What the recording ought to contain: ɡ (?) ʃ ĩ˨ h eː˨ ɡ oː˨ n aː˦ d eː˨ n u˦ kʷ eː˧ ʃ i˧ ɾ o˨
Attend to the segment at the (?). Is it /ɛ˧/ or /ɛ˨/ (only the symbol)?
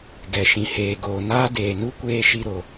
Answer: ɛ˨